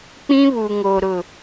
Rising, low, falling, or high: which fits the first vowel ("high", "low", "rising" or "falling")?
high